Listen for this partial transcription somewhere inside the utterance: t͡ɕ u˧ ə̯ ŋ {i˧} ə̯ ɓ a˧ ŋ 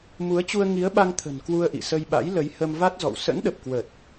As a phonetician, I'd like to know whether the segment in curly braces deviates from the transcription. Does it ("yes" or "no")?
yes